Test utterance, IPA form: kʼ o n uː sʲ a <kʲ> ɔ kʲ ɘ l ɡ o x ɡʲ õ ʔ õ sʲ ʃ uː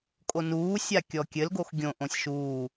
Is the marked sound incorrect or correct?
correct